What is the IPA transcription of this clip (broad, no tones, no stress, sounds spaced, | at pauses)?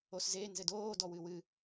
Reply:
o s z e n z ɘ d oː d ɔ w ɨ w ɨ